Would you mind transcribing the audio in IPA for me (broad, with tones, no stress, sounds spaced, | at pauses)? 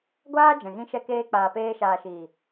ɡʷ aː˦ d͡ʒ ɛ̃˨ ɣ ĩ˦ ʃ ɛ˦ k eː˦ k͡p aː˨ p eː˧ ʃ aː˨ ʃ iː˨